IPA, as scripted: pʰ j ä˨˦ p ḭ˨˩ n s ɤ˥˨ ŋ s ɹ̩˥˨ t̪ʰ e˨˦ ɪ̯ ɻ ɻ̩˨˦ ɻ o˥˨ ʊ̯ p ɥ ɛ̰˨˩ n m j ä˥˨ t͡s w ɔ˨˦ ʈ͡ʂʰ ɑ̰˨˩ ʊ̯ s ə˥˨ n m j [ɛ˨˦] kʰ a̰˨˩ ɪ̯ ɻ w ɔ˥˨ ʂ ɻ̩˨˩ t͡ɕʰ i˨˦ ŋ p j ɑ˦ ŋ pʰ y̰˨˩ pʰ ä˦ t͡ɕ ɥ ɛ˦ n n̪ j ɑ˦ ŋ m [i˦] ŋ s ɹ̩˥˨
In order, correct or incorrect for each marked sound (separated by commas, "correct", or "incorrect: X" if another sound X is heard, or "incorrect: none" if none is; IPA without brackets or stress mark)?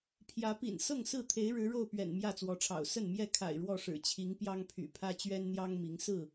incorrect: ɛ˥˨, incorrect: i˨˦